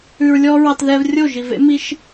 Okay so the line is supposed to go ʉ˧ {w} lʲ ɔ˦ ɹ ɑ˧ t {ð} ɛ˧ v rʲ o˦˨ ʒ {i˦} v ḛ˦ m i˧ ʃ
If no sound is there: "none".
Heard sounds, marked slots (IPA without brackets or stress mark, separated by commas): ɹ, ð, i˨